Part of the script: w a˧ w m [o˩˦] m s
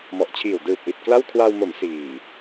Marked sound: correct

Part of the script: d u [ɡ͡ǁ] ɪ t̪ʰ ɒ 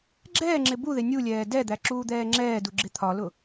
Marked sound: correct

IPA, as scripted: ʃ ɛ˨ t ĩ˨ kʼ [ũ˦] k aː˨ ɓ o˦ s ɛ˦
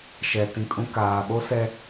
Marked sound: correct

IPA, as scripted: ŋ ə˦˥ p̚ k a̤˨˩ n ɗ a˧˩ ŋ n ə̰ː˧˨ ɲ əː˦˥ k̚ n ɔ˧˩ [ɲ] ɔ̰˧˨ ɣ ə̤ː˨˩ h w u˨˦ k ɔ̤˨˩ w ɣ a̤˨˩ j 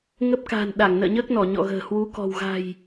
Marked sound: correct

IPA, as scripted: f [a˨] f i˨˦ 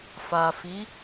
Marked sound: correct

